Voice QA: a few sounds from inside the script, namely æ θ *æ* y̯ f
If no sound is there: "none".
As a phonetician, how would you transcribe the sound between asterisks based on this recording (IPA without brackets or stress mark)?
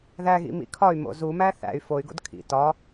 æ̰